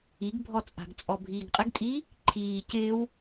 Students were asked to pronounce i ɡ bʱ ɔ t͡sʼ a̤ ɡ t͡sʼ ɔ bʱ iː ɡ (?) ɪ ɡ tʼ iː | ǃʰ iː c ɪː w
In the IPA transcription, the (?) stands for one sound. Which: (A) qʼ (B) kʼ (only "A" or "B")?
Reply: A